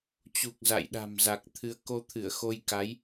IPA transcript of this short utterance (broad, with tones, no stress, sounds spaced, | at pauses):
t͡ɕ u˨˩ k̚ z a̰˧˨ j ɗ a̤˨˩ m z a˨˩ k̚ t̪ʰ ɨ˨˦ ə̯ k o˧ t̪ʰ ɨ˧˩ ə̯ x o˧ j k a˨˦ j